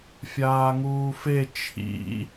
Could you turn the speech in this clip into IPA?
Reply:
fʲaːŋuːfe t͡ʃʰḭ

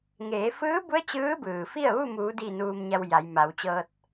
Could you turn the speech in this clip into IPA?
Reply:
ŋeː˩˧fɯː˧˥bu˧˥ə̯ t͡ɕɯː˧˥bɯː˩fi˥˨ə̯ ʋu˥˨muː˩˧di˧˩ nuː˧mɲa˧wja˩˧j ma˩˧wt͡ɕɤː˧t̚

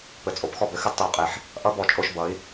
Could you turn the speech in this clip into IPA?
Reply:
pɘ˨˩t͡sʼo˩˥pxɔ˧bɘ˩˧ xɘ˧dtˤʏ˨˩u̯qʼe˨˩ħ | ʔʌ˧˥bɔ˨˩t͡ʃʼo˧ʃbʌ˩˧i̯

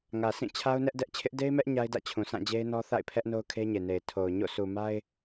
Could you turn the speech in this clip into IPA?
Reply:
ŋä˨sʰĩ˦˨ t͡ɕʰa˦ʊ̯nɛ˦ʔdɛ˦ʔ t͡ɕʰɪ˦ʔ de˦ɪ̯mɛ˦ʔ ɲa˦ɪ̯dä̰˦˨t͡ɕʰũ˨ sʰã˦˨d͡ʑe˦ɪ̯nɔ˦ θa̰˦˨ɪ̯pʰɛ˦ʔno˦ʊ̯ kʰe˦ɲe˨ne˨ɪ̯ tʰo˨ʊ̯ ɲo̰˦˨ su˨ma˦ɪ̯

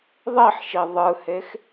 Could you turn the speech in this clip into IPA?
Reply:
ðˤiħʃi ðˤɯhex

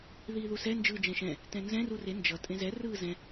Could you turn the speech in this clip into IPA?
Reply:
ðiːðusɛ nd͡ʒɯːd͡ʒɛ̃ʃɛ̃ | tɛ̃nzɛ̃ rure nd͡ʒʌ tʼẽzɛ rɯːzɛ̃

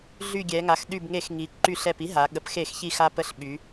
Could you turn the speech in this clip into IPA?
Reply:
ɮy˧˩ɡʲɛ˩˧ŋa˩˧x ɗy˧˩bŋe˧˩˧xŋi˩˧ ǃy˧˩ɬɛ˧˩p i˧˥ɦa˩˧ ɠə˩˧pxe˧˩˧xçi˧˩ xa˧pə˧˩ɬɓy˩˧

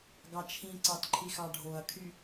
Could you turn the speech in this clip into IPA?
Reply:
ɡɑt͡ʃʰĩǀɑt ǃʰixɑɖʱoɐ̯kʰy

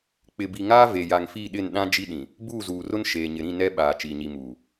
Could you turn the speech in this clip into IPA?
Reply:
k͡pɪ˨bi˨ŋaː˦ ve˨ja˨ŋfi˦˨ɗɪ˦˨n ɗã˦ d͡ʒi˦ɗĩ˨ | buː˦˨zuː˨rʊ˦n ʃeː˨ɲɪ˨ɾĩ˦˨ nɛ˦ɓaː˨ t͡ʃiː˨ɲi˨muː˨

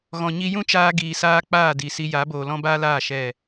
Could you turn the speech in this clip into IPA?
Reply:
ɣɔ̃˨ɲi˧ jũ˦ t͡ʃaː˧ɡiː˨saː˧ k͡paː˦˨di˨ si˧ja˨˦ boː˨lɔ̃˦baː˦laː˦˨ ʃɛ˦˨

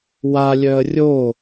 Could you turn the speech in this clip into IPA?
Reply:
walʲœə̯ rʲo

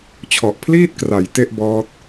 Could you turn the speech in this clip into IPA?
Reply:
t͡ɕʰɔ˨˩ʔpʰliː˥˩t̚kra˩˦j te˥˩ʔbɔː˦˥t̚

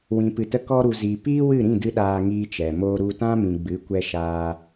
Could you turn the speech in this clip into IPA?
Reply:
wĩ˨pɨ˨tə˧ kɔ˧ɾu˨ ziː˨piː˦wɨ˦˨ ɾĩ˦˨dɨ˧ ɗaː˧ŋiː˧t͡ʃɛ˨ moː˧ɾu˧tã˦mĩ˨ ɡ͡bɨ˨˦ kʷɛ˧ ʃaː˧

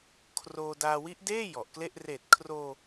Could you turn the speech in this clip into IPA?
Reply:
kʰroː˧ daː˧wi˦˥ʔdeː˥˩ jɔ˨˩ʔkle˥˩ʔ reː˨˩t̚kʰroː˧

